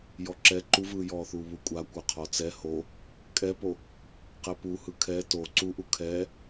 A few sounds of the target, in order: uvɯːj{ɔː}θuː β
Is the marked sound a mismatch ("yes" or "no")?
no